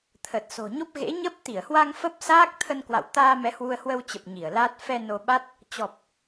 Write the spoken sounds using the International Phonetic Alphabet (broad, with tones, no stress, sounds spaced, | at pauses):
t̪ʰ ə˨˩ t̚ s o̤˨˩ ɲ o˦˥ p̚ ɣ ḛ˧˥ ɲ ə˦˥ p̚ t̪ i˧˩ ə̯ h w a˧ ŋ f ə˦˥ p̚ s aː˦˥ k̚ t̪ʰ ə˧ n k w a̰˧˨ w t̪ aː˧ m ɛ˨˦ h w u˧ ə̯ h w ə˧ w t͡ɕ ə˨˩ p̚ ɲ i˧˩ ə̯ l aː˦˥ t̚ f ɛ˧ n o˧ ɓ a˦˥ t̚ | t͡ɕ ɔ˨˩ p̚